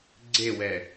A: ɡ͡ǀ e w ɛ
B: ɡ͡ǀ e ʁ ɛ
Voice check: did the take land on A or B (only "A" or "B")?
A